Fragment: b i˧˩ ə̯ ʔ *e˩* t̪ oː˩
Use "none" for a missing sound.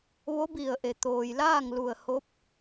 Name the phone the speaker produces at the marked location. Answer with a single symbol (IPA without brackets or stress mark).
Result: e˩